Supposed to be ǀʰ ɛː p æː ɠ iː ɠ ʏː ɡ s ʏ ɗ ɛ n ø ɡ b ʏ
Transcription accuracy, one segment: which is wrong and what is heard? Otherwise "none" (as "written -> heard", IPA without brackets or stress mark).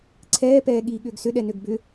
æː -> ɛː